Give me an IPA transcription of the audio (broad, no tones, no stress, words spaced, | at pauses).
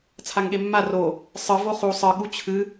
t͡sʰaŋɠemːa ro | sˤɨ voχu sˤɨ ɠut͡ɕʰɨ